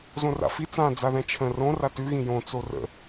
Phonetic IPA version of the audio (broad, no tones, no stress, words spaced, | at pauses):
zõra̰fi t͡sã d͡zaðɛ̃t͡ʃʰə̃ rõ ratʉ ɣĩjõ t͡sorə̰